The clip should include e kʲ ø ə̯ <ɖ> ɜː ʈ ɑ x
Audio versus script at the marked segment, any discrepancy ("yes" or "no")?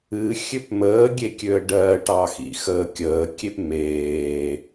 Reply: no